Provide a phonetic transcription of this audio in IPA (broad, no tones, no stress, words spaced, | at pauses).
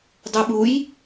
dˤʉɓuj